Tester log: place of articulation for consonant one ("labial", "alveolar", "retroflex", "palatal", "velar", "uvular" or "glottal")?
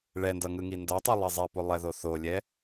retroflex